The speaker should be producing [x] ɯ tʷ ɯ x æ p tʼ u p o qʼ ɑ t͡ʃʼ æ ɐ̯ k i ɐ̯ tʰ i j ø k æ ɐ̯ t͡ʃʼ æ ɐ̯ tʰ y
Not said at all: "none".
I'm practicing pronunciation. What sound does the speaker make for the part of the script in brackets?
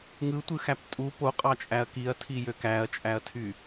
ŋ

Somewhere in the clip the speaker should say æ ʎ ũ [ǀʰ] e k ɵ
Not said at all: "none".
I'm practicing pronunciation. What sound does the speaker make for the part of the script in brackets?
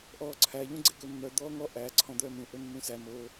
ɡ͡ǀ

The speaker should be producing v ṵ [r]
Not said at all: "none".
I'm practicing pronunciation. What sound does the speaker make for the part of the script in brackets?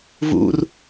r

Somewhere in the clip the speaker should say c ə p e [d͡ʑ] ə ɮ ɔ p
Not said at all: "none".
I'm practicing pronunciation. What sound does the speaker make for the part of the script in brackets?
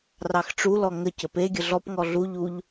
ɡʲ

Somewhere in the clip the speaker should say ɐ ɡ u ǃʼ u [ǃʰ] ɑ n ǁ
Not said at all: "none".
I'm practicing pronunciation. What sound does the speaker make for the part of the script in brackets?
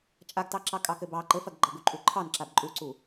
ǃʰ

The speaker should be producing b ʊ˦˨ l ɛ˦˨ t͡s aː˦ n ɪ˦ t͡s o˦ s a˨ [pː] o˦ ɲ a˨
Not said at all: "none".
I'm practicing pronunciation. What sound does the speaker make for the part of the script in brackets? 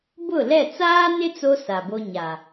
b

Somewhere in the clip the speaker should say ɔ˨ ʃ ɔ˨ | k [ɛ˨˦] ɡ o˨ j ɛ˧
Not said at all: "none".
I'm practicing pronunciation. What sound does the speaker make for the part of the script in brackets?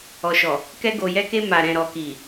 ɛ˧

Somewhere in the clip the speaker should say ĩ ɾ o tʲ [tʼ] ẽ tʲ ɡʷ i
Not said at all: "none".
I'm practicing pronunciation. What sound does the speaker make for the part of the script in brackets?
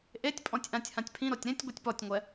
ɾ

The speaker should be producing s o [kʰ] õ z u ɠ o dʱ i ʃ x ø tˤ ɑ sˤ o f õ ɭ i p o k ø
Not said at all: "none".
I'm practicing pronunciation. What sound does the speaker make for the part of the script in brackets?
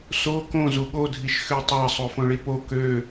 k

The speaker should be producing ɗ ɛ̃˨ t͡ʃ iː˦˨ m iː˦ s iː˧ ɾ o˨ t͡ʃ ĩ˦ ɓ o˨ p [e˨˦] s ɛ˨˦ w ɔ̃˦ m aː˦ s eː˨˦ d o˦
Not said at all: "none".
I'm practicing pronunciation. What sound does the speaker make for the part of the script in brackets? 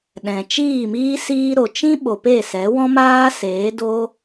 e˦˨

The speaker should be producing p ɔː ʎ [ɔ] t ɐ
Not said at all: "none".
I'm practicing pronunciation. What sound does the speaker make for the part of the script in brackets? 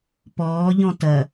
ɔ̃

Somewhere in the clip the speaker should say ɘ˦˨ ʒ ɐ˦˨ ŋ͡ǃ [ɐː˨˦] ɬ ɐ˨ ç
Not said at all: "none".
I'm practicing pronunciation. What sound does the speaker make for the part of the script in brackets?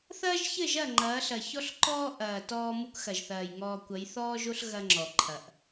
ɐː˨˦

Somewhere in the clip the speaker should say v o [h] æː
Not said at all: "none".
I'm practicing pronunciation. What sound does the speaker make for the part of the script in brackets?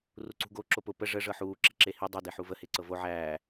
ʕ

